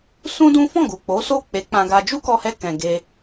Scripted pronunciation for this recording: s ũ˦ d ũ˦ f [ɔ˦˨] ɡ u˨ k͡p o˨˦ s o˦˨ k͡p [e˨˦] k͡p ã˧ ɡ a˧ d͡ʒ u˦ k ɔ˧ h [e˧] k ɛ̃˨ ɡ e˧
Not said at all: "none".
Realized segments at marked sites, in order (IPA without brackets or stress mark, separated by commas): ɔ̃˦˨, e˨˦, ɛ˧